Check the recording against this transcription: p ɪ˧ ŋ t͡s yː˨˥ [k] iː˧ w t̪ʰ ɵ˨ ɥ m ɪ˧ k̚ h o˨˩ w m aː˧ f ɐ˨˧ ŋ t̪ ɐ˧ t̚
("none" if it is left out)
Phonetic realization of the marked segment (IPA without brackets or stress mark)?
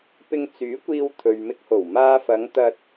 kʷ